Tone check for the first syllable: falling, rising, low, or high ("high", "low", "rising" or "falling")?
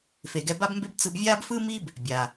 low